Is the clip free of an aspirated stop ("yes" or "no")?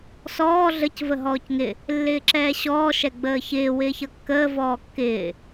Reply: yes